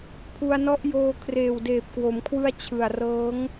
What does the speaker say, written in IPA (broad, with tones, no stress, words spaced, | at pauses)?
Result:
pʰu˧a̯nɔ˦˥ʔjoː˧ kʰreː˨˩wdeː˨˩p̚kwo˩˦mkʰwɯ˦˥a̯ t͡ɕʰɯ˨˩a̯rɤː˦˥ŋ